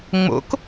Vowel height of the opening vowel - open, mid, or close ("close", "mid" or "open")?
mid